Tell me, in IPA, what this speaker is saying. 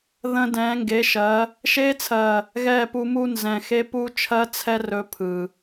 ð ə̃˧ d ɛ̃ː˨˦ ŋ ɡ e˨˦ ʃ ɜ˨˦ | ʃ eː˧ t͡sʰ ɜ˨ | ɣ ɛː˦˨ p u˧ m u˦ n z ɛ̃˨ x e˦ p uː˦ t͡ʃʰ ɜ˦ t͡sʰ ɛ˦ r ɵː˧ pʰ ɯ˨

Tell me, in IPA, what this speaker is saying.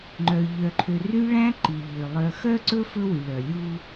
ŋ͡ǃ œ˨ ʎ œ˨ ǃʰ ø˨ r y˦ ɭ æ̃˦ ǃ i˨ ʎ ø˨ lˠ œ˨ x œ˦ ǀ ɵ˦ f ɵ˦ w y˨ ɭ œ˨ lʲ u˦

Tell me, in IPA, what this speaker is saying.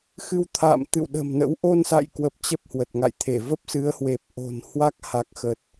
x ɨ˧ w t̪ʰ a̰ː˧˨ m t̪ ɨ̰˧˨ w ɗ ə̤˨˩ m n ə̰˧˥ w ʔ o˧ n s a̰˧˨ j k w ə˨˩ p̚ t͡ɕ ə˦˥ p̚ h w ə˨˩ t̚ ŋ a̰˧˨ j t̪ʰ e˧˩ v ə˦˥ p̚ s ɨ˨˦ ə̯ h w e˨˩ p̚ ʔ o̤˨˩ n h w a˦˥ k̚ h a˨˩ k̚ x ə˨˩ t̚

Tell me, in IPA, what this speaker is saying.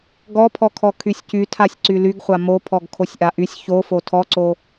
ɡ ɔ pʰ ɔ kʰ ɔ kʰ y sʲ c y tʰ a sʲ ǀ y l y ɡ χʷ a m o pʰ ɔ ɡ kʰ o sʲ ʔ a ʔ y sʲ ç o f o tʰ ɔ ǀ o

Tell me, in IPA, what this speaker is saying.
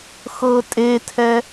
x ɤ tʼ e tʰ ɛ

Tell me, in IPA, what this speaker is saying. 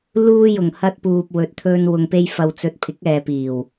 l uː˧ j ʊ˨˩ ŋ h ɐ˧ t̚ p uː˨ p̚ w ɵ˨ t̚ t̪ʰ ɵ˧ n w ʊ˨ ŋ p e˧ j f ɐ˨ w t͡s ɵ˨˥ t̚ pʰ ɪ˨˥ k̚ ɛː˨ p iː˨˩ w

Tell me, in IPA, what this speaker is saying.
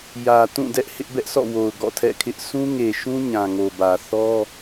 j ä˨ t ũ˦˨ d ɛ˦ ʔ h ɪ˦ ʔ b ɛ˦ ʔ s ɔ̰˦˨ w o˨ ʊ̯ ɡ ɔ̰˦˨ tʰ ɛ̰˦˨ kʰ ɪ˦ ʔ s ũ˦ ŋ e˨ ʃ ũ˦ ɲ ã˨ ŋ o˨ b ä˨ θ ɔ˦

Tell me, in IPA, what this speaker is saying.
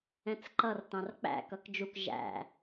ɛ̃ t͡s ǃ ʌ r t ɑ̃ r k͡p æ̰ k ʌ k d͡ʒ u k ʒ æ̰

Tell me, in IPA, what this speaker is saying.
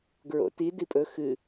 ɡ ɹ o̰ t i d i pʼ ɵ x ɨ

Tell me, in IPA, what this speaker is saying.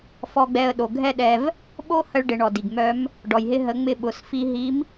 f ɔ˧ ɡ͡b ɛ˧ ə̯ ɗ o˩ ɡʱ ɛ˥ ɗ ɛ˧ v | ɓ o˥ h ə˧ ɭ ɖ ɪ˩˧ ɳ ɔ˩ d i˩ ɡ m œ˧˥ m | ɖ ɔ˩ j ɦ ɪ˧ ɦ ə˩˧ ŋ͡m ɪ˧ ɓ ʊ˩˧ s f i˧ ɦ i˧˥ m

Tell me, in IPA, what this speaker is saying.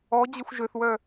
ɔ d͡ʑ ə xʷ ʒ ø θ w œ

